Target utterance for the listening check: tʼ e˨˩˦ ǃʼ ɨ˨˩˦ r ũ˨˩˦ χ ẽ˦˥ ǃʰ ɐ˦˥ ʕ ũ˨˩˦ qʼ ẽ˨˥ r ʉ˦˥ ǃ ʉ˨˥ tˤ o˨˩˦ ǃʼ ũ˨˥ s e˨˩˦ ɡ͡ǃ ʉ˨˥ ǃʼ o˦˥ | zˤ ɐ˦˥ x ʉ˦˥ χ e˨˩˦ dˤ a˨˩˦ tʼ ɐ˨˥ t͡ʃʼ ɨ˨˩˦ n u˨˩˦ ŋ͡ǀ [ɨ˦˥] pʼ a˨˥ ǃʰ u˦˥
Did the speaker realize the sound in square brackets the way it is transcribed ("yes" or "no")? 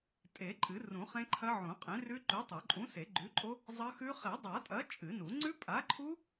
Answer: no